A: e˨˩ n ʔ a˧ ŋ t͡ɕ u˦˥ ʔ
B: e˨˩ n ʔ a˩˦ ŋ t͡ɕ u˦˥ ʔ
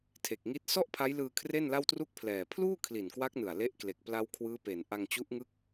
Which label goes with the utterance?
A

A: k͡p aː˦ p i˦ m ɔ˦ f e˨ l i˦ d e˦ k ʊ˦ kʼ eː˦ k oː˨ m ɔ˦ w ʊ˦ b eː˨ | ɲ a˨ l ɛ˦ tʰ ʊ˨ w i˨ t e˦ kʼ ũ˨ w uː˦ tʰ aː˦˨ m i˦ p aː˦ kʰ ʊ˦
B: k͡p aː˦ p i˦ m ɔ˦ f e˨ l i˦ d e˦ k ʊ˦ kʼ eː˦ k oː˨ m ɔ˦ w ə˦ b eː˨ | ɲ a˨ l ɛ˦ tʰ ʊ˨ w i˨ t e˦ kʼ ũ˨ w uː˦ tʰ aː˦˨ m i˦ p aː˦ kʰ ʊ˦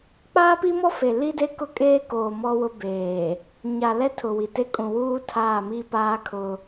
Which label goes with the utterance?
A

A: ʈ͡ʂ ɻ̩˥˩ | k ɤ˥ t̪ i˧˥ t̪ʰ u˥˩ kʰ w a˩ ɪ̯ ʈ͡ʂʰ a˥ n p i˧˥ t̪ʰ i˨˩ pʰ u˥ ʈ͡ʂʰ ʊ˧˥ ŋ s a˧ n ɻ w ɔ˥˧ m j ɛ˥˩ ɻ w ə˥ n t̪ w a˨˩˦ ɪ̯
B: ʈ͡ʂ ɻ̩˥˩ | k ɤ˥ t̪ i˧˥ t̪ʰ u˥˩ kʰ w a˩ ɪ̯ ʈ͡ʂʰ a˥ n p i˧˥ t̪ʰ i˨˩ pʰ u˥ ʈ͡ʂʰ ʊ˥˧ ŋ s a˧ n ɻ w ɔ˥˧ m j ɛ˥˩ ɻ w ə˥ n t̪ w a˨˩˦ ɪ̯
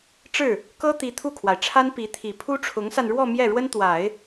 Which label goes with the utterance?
A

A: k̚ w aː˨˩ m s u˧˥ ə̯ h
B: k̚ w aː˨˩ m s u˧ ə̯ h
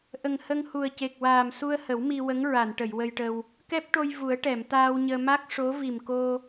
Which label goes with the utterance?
B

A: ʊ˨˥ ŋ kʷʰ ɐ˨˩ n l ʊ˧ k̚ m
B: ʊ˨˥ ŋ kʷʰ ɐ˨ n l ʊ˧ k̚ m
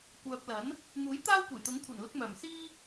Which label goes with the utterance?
A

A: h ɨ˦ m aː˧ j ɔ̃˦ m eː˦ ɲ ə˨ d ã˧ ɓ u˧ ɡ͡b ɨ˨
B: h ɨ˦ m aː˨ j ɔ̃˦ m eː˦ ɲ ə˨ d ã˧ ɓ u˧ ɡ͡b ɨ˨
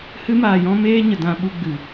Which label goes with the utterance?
A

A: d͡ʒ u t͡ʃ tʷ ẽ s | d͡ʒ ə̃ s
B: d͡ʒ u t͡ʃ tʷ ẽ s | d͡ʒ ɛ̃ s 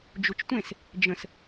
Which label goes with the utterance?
A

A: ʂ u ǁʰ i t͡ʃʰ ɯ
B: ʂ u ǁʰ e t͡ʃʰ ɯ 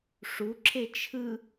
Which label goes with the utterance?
B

